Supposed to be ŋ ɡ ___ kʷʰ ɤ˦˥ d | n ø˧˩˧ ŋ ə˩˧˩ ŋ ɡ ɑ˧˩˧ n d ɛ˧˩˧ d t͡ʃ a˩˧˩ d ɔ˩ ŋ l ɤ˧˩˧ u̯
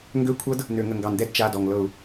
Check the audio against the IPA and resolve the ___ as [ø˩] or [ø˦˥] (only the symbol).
ø˦˥